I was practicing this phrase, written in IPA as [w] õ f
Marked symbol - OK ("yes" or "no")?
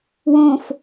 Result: yes